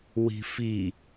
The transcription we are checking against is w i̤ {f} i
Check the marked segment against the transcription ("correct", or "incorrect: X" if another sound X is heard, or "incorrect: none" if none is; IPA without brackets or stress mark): correct